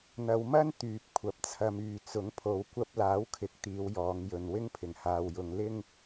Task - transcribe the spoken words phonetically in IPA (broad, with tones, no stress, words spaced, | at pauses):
n̪ɐ˨˧wmɐ˥n t̪yː˨p̚kʷʰɐ˨˥p̚t͡sʰɐ˧myː˨ t͡sʊ˨˥ŋ pʰo˨wkʷɐ˧p̚laː˨˥w kʰɪ˨˥k̚t̪iː˨˧wjɔː˨˧ŋjɵ˨n wɪ˥ŋpʰɪ˨˩ŋhaː˨wjʊ˨˧ŋ lɪ˥ŋ